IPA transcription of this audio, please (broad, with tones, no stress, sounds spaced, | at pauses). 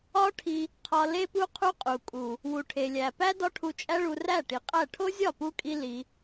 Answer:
ɒ˦ ʈʰ i˧ | qʰ ɒ˧ l e˦ p u˦ qʰ u˦ qʼ u˨ kʼ u˨ | w u˨ ʈʰ e˨ lʲ æ˨ p æ˦ d ɒ˦ ʈʰ u˧ t͡ʃʼ æ˦ ɭ u˧ r æ˦˨ ʈ i˨ qʼ æ˦˨ ʈʰ o˦ zʲ ɒ˦˨ p u˧ kʼ i˧ l i˧